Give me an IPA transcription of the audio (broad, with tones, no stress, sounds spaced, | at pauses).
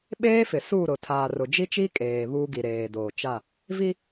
ɓ eː˦ f ɪ˨ s uː˦˨ ɾ ʊ˨ tʰ aː˨ r ʊ˨ d͡ʒ i˦ t͡ʃ i˦ kʼ eː˨ β uː˦ ɡ i˨ ɾ eː˨ d oː˨ t͡ʃ a˦˨ | v i˦